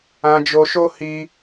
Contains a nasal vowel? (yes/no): yes